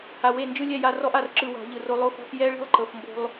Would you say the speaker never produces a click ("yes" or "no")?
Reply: no